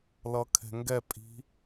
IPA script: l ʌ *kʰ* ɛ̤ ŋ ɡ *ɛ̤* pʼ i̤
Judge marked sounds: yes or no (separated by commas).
yes, no